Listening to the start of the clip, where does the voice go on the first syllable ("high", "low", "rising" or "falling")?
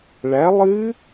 rising